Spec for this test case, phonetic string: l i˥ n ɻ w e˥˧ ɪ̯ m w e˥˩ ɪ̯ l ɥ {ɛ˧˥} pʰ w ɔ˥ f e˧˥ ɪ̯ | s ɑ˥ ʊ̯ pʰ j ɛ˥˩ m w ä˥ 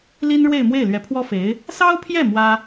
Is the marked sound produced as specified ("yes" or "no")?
yes